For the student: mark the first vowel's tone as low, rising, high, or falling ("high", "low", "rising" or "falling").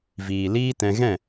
low